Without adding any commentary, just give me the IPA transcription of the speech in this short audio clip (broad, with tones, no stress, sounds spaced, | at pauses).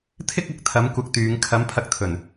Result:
t̪ʰ ɪ˥ k̚ ɐ˨ k̚ t̪ʰ ɐ˨˥ m kʷ ɐ˧ k̚ t̪ yː˨˧ ŋ kʰ ɐ˨˥ m pʰ ɐ˧ k̚ t̪ʰ ɵ˨˩ n